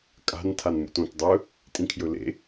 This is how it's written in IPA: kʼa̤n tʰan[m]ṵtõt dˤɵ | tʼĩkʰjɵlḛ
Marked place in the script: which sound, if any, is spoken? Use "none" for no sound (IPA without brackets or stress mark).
m